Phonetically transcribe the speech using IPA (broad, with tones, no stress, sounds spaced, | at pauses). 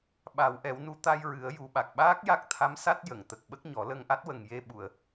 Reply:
ɓ a˨˩˦ w ʔ ɛ˨˩˦ w n u˧ t̪ a˧ j ɹ ɨ˨˩˦ ə̯ j u˨˩ ɓ a˨˩ k̚ ɓ aː˦˥ k̚ j a˦˥ k̚ t̪ʰ a˧˥ m s a˦˥ t̚ j ə˨˩˨ ŋ t̪ ə˨˩ k̚ ɓ ə˦˥ k̚ ɲ ɔ˨˩˦ l ə˧ ŋ ʔ a˦˥ t̚ w ə˨˩ ŋ j e˧ ɓ u˨˩˨ ə̯